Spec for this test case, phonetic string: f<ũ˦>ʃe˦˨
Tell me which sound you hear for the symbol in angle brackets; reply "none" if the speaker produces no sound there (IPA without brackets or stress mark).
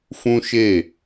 ũ˦